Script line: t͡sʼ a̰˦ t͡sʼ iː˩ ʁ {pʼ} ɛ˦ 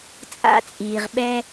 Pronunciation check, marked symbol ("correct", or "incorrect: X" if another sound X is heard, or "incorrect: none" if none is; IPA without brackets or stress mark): incorrect: ɓ